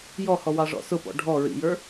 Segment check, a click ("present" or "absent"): absent